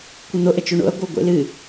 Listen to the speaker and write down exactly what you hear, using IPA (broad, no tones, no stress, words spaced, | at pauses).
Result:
kʷɨn̪o ʔət͡ʃoɳo̰ɐ̯ ɡʷɤɡʷḛlɨ